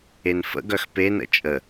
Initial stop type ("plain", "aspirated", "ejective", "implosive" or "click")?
plain